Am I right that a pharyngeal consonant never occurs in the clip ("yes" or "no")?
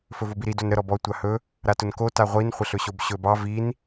yes